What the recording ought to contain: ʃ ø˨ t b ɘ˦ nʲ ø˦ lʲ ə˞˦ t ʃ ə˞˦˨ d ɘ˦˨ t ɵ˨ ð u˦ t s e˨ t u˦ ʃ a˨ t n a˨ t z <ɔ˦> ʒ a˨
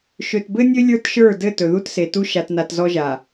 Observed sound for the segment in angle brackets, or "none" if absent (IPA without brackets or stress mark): ɔ˦